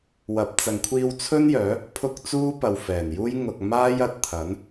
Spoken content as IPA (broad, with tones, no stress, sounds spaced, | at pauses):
w ɐ˨˥ p̚ t͡s ɐ˨ ŋ kʷʰ iː˧ w t͡sʰ ɵ˥ n j œː˨˥ | pʰ ʊ˧ k̚ t͡s uː˥ p ɐ˨ w f ɛː˨˩ n j uː˥ j ŋ ʊ˧ k̚ m aː˥ j ɐ˨˥ t̚ t̪ʰ ɐ˨˥ n